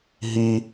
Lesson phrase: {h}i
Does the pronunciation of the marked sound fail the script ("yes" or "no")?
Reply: yes